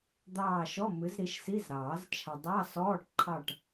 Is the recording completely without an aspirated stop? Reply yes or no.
no